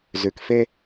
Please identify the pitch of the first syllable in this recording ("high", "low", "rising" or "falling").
low